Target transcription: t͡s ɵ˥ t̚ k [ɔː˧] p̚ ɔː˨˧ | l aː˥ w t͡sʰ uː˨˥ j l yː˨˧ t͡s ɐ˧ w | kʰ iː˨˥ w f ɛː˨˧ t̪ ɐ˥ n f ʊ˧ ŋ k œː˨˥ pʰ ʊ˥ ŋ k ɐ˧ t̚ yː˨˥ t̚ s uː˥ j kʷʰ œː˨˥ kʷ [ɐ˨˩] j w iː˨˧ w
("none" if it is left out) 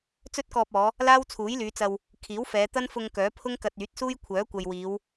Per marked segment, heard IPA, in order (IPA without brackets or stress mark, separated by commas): ɔː˧, ɐ˨